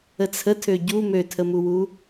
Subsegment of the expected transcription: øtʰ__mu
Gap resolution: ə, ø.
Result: ə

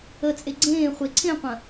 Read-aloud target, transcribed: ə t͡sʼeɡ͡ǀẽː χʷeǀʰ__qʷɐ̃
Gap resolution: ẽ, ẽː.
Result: ẽ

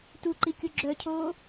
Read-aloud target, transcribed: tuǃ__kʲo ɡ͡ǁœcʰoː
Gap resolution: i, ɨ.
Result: i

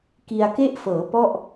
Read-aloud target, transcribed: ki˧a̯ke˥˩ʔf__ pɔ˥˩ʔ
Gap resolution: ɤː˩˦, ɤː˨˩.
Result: ɤː˩˦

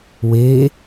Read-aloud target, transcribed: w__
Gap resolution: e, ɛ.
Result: e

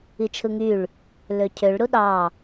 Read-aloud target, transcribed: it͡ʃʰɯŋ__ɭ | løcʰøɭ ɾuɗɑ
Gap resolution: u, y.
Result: y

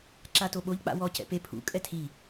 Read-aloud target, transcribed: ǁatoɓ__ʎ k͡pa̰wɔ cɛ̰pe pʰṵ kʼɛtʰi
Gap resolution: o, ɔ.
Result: o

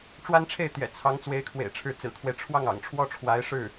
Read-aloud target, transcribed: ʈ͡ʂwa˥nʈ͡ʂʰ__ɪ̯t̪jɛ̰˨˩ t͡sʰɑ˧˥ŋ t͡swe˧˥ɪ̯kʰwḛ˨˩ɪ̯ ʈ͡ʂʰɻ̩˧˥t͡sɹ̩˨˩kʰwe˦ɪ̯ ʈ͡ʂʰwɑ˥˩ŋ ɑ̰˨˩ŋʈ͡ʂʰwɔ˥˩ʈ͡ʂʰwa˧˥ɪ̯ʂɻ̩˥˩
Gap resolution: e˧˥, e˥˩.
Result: e˥˩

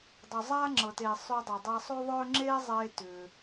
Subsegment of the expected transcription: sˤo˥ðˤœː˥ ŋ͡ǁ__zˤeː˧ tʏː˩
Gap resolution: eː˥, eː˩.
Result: eː˥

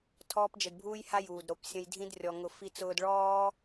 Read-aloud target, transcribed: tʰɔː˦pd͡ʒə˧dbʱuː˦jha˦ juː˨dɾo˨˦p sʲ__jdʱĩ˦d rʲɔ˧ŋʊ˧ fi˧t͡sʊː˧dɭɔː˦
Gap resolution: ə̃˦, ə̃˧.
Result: ə̃˧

